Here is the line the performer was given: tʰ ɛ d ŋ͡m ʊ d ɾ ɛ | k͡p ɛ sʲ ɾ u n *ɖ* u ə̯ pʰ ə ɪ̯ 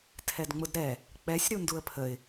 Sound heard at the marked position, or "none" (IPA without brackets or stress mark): d